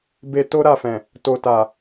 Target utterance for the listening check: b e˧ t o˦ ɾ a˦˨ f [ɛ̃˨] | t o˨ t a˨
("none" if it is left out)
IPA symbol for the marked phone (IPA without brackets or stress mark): ɛ̃˨